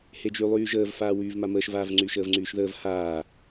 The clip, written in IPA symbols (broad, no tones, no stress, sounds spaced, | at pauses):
h e d͡ʒ y lˠ yː ʒ əː v f aː w yː v m a m əː ʃ v aː v ŋ͡ǀ yː ʃ əː v ŋ͡ǀ yː ʃ ð əː v h aː